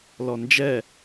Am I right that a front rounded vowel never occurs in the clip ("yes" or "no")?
yes